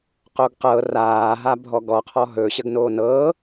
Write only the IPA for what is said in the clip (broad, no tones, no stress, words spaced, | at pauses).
qoɡqɤ raː ɦabʱɔɡɔ qʰɔɦɵ ɕəɡnoːnɤː